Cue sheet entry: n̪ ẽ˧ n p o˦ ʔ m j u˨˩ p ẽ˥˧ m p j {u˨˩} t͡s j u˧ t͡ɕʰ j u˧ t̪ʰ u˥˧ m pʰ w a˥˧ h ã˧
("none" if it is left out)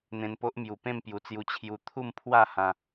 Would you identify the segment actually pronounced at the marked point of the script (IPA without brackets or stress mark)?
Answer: u˨˩